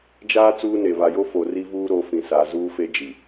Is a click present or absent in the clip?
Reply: absent